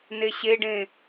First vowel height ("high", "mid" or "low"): mid